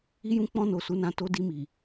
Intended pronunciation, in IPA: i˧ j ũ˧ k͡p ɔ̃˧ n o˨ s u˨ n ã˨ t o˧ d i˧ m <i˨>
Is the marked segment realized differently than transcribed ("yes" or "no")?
no